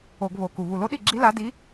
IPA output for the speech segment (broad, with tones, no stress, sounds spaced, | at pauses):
o˧˩˧ ɡ β o˨˩ k u˨˩ β u˨˩ l o˧˥ ɗ i˥˩ ɡ͡ǁ i˧˥ l a˧˥ d i˧˥